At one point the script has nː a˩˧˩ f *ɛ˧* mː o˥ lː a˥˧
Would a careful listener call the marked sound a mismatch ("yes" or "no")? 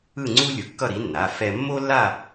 no